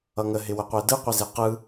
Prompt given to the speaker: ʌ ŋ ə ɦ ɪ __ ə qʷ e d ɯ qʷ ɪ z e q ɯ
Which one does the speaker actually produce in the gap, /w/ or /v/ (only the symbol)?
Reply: w